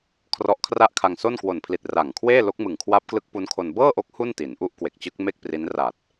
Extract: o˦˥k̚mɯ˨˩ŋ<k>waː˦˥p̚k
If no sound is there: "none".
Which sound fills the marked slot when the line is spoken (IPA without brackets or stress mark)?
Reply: kʰ